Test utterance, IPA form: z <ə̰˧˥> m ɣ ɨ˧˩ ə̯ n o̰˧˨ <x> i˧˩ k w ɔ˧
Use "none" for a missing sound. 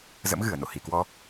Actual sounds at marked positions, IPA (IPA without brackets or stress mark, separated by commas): ə̰˧˥, h